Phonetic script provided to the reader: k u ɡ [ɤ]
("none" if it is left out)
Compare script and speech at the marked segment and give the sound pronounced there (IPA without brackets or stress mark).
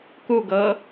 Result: ɤ